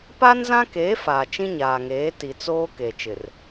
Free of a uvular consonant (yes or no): yes